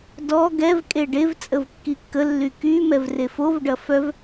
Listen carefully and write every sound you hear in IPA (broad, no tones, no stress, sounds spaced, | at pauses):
d ɔ ɡ ɛ v kʼ e ɖ e v t͡sʼ ə v kː i kː ə lː y k y m ɛ v r e f o v ɖ ɐ f œ v